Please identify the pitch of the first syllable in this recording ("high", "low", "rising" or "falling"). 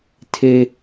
high